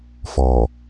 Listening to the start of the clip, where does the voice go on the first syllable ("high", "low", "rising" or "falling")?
low